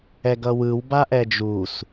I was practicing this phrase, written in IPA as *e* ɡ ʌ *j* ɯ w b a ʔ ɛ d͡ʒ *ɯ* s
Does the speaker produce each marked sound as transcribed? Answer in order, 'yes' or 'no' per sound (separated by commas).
no, no, no